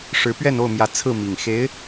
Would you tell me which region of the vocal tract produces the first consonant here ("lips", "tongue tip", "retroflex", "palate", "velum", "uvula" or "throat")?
retroflex